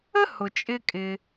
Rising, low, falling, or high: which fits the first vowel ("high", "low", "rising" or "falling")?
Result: high